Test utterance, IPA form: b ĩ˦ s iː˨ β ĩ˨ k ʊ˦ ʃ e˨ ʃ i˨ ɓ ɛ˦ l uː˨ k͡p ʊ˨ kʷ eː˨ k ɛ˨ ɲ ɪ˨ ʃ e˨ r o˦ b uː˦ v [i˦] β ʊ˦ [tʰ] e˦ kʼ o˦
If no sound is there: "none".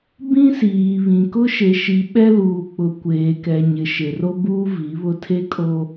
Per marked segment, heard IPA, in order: i˨˦, tʰ

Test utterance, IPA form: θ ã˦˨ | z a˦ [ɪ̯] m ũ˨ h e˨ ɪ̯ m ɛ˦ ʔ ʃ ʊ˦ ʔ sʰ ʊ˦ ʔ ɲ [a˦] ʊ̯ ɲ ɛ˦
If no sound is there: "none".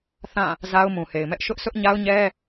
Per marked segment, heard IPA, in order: ʊ̯, a˦

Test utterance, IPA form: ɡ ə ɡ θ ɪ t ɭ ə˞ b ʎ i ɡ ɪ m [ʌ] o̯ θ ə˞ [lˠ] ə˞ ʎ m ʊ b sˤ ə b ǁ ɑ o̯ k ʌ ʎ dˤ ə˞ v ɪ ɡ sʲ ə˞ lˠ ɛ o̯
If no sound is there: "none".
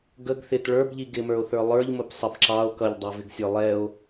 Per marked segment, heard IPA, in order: ə˞, lˠ

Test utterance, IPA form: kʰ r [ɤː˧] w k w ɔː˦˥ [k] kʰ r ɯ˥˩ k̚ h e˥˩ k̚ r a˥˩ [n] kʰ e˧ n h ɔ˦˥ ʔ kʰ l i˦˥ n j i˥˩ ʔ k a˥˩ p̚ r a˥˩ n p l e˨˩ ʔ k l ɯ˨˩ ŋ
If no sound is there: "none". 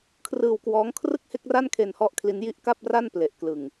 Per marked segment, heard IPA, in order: ɯː˧, ŋ, n

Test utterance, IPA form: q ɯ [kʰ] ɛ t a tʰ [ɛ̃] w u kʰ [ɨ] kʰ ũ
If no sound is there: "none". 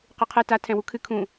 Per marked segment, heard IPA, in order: qʰ, ɛ̃, ɨ

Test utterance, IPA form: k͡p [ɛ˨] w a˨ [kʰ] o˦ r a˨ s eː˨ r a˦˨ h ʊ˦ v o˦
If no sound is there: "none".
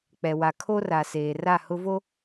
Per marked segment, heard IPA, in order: ɛ˨, kʰ

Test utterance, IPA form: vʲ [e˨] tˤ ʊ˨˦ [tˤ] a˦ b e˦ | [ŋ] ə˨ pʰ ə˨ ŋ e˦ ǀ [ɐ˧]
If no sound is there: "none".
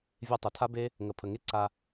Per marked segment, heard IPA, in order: e˧, tʰ, ŋ, a˧

